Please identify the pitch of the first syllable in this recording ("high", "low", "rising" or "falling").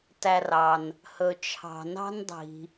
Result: low